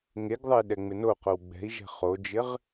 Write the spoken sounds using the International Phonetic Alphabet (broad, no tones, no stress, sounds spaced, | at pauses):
ŋ e ɡ ðˤ ɐ i̯ ɗ ɛ ŋ͡m ɪ n o q o w ɡ͡b ɛ̤ i̯ ʒ ɛ̤ χ o d͡ʒ ɪ ʁ